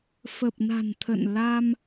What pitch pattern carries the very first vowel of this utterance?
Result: low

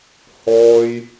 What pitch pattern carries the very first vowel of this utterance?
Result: high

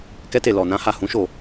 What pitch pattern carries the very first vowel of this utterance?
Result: high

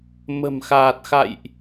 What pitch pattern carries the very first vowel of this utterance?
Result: low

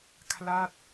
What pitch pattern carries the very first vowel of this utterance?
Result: falling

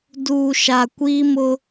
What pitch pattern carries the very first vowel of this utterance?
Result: low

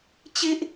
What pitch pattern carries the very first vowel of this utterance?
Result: high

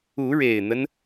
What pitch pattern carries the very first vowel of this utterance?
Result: rising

